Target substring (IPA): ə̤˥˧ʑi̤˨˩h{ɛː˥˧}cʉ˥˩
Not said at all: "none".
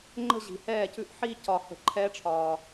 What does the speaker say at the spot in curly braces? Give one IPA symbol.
ɛː˥˩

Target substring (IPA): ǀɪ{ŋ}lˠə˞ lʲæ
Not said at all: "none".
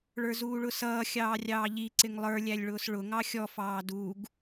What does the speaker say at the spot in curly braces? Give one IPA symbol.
ŋ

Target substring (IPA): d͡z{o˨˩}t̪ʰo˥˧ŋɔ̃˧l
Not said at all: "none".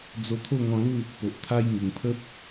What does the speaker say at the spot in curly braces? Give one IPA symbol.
o˧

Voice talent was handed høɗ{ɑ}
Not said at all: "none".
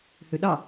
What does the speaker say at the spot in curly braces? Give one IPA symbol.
ɑ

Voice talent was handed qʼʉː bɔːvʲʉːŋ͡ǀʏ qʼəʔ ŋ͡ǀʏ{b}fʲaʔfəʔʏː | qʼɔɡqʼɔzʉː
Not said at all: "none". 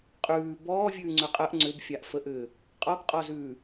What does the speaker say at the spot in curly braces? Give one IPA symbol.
b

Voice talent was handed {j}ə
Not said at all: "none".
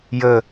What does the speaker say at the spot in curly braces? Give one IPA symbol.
j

